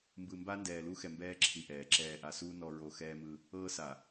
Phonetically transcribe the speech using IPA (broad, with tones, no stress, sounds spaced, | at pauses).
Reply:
m b ɯ˨ m b a˦ n d ɛː˨ l u˦ x ɛ˨ m b ɛː˦ ǁʰ i˨ ʔ ɛː˨ ǁ ɛː˨ ʔ a˨ s uː˦ n ɔ˦ ɹ o˦ x ɛː˦ m ɯ˦ | ɤː˦ s a˨